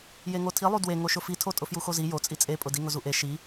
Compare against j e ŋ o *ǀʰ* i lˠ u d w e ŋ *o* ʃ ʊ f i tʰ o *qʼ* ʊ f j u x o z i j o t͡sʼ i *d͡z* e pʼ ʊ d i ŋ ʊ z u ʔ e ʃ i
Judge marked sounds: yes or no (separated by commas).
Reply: no, yes, no, no